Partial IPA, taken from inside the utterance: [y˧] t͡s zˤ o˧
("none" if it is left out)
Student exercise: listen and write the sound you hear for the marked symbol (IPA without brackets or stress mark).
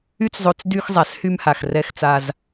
y˦